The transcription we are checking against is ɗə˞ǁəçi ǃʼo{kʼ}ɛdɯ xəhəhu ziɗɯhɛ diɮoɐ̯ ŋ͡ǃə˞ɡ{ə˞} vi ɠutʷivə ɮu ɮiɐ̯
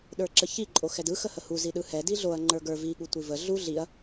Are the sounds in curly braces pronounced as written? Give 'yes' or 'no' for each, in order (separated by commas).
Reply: no, yes